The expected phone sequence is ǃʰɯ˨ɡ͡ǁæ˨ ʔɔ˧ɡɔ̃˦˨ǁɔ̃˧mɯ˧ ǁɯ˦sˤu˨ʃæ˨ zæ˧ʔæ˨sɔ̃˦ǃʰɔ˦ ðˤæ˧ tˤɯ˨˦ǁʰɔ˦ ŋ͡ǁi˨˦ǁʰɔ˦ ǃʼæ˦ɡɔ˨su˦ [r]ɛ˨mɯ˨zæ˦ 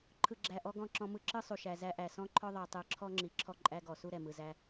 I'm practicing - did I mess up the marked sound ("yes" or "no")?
yes